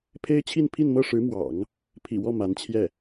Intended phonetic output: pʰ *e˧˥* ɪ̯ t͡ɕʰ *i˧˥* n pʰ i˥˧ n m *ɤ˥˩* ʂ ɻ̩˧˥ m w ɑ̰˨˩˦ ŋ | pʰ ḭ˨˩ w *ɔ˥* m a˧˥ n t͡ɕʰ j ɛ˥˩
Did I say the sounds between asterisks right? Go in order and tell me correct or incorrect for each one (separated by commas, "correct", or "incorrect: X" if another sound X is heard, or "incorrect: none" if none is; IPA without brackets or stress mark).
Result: incorrect: e˥, incorrect: i˥˧, correct, incorrect: ɔ˥˩